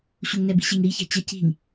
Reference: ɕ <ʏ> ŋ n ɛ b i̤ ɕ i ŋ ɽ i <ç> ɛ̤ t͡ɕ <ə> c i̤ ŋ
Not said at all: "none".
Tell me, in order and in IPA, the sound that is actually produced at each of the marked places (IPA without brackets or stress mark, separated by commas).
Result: u, ç, ə